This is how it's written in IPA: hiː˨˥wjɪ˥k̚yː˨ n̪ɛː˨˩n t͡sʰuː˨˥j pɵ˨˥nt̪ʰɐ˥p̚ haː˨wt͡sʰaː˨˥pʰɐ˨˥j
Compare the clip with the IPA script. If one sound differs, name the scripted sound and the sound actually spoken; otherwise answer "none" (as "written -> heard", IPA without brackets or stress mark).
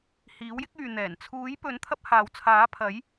none